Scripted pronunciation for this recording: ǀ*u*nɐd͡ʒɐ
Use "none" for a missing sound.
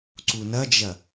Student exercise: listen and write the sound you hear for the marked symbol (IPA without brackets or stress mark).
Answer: u